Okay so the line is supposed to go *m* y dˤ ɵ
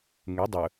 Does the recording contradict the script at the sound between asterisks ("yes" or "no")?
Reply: yes